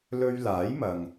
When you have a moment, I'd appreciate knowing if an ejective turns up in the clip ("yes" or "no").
no